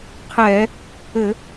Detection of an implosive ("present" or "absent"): absent